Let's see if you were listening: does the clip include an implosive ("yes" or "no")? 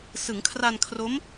no